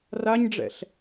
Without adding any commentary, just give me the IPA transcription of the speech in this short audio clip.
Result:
raɲɖ͡ʐɛ̰ɬ

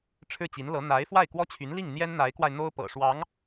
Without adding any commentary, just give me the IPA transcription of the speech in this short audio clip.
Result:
ʈ͡ʂʰɻ̩˥˩t͡ɕi˧˥nlɤ˧˥ n̪a˧˥ɪ̯ fwa˥˩ɪ̯kwɔ˥t͡ɕʰy˧˥nli˥˩ŋ n̪jɛ˥nn̪a˧˥ɪ̯kwa˧ɪ̯ n̪o˥ʊ̯pɤ̰˨˩ʂwɑ˧˥ŋ

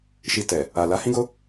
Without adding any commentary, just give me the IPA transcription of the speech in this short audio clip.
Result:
ʃi˧tɛ˨ | a˨ la˨˦hĩ˦ɡo˦

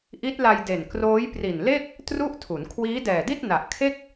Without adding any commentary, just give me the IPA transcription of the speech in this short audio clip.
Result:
ʔi˦˥t̚la˧jde˨˩n kroː˦˥jpri˨˩nle˥˩k̚ | tru˥˩ʔtʰu˩˦n kʰwiː˦˥dɛː˨˩di˥˩t̚ na˨˩ʔkʰe˥˩k̚

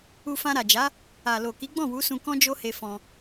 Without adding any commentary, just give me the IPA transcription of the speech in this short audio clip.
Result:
u˧fã˧ɾa˨d͡ʒa˨˦ | a˨lo˨ ki˨˦ɡ͡bɔ̃˦˨wu˨˦sũ˧ kɔ̃˦d͡ʒo˦he˧ fɔ̃˧

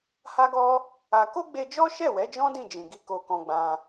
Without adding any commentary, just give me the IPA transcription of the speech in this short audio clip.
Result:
ha˧ɡɔ˧ | a˧ ko˦ɡ͡be˧d͡ʒɔ˦ ʃɛ˦˨wɛ˨˦d͡ʒɔ̃˦ dĩ˦˨d͡ʒĩ˨ɡi˧ ko˧kɔ̃˧ɡ͡bã˧

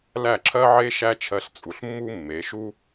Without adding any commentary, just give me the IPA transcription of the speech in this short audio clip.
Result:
læ˥˩ǁʰɜ˥ʕe˥ ʃæ˥t͡ʃʰɜ˧ɬt͡sʼu˩ɬmːu˥ mːe˩˥ ʃu˥

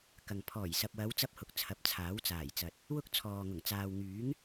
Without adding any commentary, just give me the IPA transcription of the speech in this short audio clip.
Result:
kɐ˨ŋ pʰɔː˨˩jsɐ˨p̚wɐ˨˧w t͡sɐ˥p̚hʊ˨k̚t͡sʰɐ˨˥p̚ t͡sʰaː˨˥wt͡saː˨˩jt͡sɐ˨t̚ | wʊ˥k̚ t͡sʰɔː˨ŋʊ˨˩ŋ t͡saː˨wŋyː˨˥ŋ

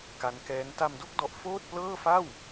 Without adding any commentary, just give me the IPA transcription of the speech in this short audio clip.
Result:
ka˦˥nkɛː˦˥n ta˧mdo˥˩k̚ dɔ˦˥ʔ foː˥˩t̚plɤː˥˩fa˥˩w

